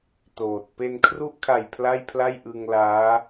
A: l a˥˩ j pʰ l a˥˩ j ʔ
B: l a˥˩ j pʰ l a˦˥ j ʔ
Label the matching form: A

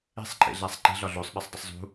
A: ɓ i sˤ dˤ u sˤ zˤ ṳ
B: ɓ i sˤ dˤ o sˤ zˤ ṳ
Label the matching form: B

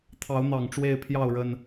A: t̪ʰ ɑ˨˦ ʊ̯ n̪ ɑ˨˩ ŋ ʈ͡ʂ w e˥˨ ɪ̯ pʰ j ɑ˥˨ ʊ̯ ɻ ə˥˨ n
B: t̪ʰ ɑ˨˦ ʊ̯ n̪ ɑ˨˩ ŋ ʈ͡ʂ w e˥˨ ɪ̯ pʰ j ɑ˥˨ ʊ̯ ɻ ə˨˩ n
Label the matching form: B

